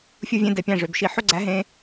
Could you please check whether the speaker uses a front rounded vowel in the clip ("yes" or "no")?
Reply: yes